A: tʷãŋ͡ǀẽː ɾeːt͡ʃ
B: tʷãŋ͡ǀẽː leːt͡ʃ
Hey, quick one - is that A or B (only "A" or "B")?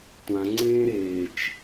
A